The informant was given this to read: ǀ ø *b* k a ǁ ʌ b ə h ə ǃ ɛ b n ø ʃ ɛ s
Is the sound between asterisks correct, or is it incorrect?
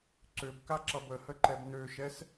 correct